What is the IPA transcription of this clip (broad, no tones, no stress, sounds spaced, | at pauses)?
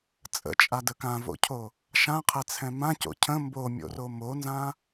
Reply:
t͡sʼ ə̰ t͡ʃʼ a d ə k ã v o̰ cʰ o | ʃ ã qʰ ɛ t͡sʰ ɛ̃ m ã c o̰ cʰ ə̃ m b o mʲ o̰ r o m o n z ã